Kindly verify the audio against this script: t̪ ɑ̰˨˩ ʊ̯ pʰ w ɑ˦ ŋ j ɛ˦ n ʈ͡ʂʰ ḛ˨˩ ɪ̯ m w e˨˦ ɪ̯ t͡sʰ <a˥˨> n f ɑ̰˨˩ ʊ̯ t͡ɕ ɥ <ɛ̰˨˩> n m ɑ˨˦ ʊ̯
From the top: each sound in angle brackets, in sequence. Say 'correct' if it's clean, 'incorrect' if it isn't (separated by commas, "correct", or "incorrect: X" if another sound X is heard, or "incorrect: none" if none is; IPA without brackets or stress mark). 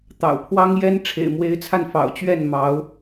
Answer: incorrect: a˧, incorrect: ɛ˥˨